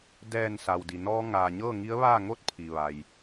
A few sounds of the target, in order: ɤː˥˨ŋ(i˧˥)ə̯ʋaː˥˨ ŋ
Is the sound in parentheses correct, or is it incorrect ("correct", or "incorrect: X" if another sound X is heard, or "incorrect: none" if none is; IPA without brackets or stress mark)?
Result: correct